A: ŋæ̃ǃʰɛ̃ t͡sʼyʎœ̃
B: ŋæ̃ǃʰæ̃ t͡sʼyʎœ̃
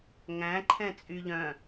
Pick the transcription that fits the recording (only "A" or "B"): A